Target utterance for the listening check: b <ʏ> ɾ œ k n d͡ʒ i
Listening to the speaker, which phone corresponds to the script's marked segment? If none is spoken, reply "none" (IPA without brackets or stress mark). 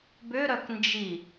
ʏ